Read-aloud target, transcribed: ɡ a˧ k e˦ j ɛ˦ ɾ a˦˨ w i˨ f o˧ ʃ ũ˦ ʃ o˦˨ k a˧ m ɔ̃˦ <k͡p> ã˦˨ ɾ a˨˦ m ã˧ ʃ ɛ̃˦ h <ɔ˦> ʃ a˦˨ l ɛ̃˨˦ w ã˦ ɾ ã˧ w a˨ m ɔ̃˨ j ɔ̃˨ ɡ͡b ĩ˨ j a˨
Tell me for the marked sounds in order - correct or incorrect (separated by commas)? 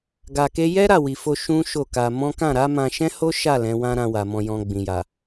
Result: incorrect, incorrect